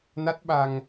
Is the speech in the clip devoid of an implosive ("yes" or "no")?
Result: no